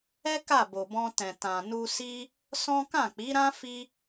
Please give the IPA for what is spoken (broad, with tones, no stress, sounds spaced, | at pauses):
ɛ˦ k a˦˨ b o˨ b ɔ̃˧ t ɛ̃˨ t ã˨ n u˧ s i˦ | s ɔ̃˦ k ã˦˨ k͡p i˨˦ ɾ ã˦ f i˦